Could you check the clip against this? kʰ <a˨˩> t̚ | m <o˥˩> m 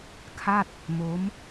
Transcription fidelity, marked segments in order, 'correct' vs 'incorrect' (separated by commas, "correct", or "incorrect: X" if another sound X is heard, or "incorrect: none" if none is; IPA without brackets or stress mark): incorrect: a˥˩, incorrect: o˦˥